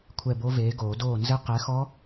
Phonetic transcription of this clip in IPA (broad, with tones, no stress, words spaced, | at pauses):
kʷʰɛ˦˨bo˦˥veː˨˥ɡoː˨˩˦ doː˦˨nzɘ˦˥ qɛ˨˥xɔ˦˥